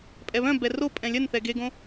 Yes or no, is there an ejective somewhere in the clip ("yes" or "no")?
yes